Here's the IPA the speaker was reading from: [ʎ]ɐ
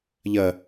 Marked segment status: correct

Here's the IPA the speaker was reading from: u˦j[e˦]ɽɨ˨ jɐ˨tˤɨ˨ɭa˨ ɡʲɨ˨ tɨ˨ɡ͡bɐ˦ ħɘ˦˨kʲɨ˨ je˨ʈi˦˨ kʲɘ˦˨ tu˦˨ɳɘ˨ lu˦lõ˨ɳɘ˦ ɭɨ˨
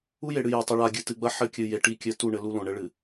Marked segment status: incorrect: e˨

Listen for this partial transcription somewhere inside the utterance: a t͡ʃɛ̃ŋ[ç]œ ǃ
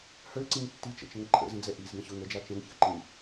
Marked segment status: correct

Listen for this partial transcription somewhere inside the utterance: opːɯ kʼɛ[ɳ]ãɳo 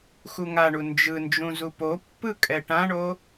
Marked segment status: incorrect: ʈ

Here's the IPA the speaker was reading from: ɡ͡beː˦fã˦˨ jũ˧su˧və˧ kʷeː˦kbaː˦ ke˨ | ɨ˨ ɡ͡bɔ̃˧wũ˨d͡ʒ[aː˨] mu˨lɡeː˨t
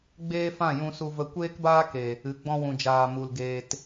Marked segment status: correct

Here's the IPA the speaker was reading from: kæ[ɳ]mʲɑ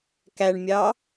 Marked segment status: correct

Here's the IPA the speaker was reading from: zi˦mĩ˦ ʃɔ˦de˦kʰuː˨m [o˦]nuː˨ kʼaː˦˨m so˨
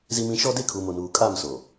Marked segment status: incorrect: o˨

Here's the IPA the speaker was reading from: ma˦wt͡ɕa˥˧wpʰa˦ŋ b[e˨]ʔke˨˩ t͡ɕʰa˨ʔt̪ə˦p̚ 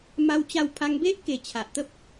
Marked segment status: incorrect: e˦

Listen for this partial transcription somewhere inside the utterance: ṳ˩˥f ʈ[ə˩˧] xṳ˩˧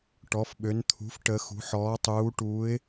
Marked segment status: correct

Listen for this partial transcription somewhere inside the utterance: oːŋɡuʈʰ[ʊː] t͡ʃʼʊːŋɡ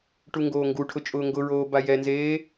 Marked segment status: incorrect: ʊ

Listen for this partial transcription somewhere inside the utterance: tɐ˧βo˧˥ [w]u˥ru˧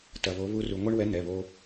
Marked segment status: incorrect: β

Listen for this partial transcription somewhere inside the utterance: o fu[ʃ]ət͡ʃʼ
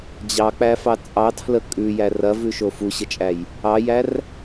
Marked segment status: incorrect: ɕ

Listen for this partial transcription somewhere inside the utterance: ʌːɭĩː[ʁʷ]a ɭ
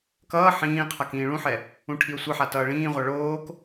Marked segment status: correct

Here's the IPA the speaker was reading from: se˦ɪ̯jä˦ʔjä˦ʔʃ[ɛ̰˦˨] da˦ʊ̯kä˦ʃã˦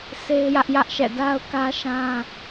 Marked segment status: correct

